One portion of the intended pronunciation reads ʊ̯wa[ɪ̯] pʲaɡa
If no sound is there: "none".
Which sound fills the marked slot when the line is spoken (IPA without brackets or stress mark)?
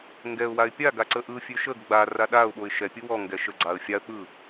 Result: ɪ̯